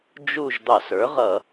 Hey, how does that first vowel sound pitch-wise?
falling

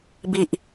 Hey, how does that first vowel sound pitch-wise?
low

